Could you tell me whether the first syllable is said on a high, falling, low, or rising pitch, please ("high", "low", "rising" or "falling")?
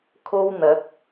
high